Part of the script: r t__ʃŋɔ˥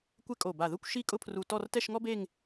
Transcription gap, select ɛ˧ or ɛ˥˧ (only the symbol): ɛ˥˧